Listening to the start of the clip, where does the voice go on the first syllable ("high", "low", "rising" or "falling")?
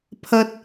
high